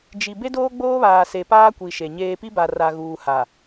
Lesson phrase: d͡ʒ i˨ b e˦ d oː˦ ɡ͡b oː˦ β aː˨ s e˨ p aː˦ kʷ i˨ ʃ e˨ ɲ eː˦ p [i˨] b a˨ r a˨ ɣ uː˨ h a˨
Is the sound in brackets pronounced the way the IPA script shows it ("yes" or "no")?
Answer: no